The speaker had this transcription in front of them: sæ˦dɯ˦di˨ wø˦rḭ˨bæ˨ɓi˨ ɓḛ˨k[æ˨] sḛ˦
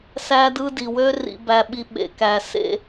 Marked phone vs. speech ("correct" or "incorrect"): correct